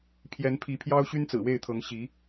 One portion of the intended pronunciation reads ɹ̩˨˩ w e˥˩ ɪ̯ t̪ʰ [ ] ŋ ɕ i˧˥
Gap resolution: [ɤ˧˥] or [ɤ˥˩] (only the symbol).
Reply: ɤ˧˥